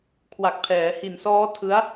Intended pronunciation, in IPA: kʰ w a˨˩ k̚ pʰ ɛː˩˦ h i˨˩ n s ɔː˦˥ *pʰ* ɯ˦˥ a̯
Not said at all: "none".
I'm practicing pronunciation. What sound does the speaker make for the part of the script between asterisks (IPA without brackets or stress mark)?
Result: tʰ